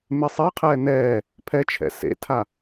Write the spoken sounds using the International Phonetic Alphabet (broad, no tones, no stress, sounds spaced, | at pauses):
m e sˤ e qʰ ɛː n ɛː | pʰ ɛ t͡ʃʰ ɛ̰ s ḛ tʰ a